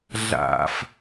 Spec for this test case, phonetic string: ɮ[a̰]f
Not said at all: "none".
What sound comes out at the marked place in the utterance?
a̰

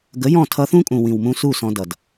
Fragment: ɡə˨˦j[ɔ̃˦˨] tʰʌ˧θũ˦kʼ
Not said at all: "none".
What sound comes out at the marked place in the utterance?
ɔ̃˦˨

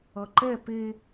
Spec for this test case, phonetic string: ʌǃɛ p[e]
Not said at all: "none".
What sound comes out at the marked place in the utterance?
e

